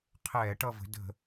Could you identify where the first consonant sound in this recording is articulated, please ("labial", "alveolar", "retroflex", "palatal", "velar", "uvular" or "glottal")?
uvular